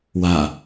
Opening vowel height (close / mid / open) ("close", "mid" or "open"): open